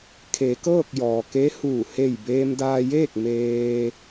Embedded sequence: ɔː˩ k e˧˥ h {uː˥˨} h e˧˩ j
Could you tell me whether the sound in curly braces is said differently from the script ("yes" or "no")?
yes